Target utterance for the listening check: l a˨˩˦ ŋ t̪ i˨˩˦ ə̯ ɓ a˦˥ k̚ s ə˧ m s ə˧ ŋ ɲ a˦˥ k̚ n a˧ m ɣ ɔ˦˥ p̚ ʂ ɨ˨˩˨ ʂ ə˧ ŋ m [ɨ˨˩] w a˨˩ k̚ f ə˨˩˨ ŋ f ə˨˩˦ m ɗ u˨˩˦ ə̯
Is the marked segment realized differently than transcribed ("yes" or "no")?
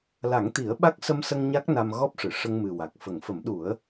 no